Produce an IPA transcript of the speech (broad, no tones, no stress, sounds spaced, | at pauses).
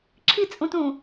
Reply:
ǁʰ i t͡sʼ ũ t ũ